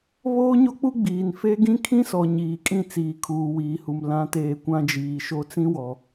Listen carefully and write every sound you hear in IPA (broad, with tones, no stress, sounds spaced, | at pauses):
β oː˦ ɲ o˦ k͡p u˦ ɡ͡b iː˨ n f e˦ ɡ ĩ˦ kʰ ĩ˦ s ɔ˨ ɲ iː˨ kʼ ĩ˦˨ t͡s iː˨ kʰ uː˨ w iː˨ h u˨ m l ã˨˦ t eː˨ kʷ ã˦ d͡ʒ iː˨ ʃ o˦ t͡s ĩ˦ w ɔ˨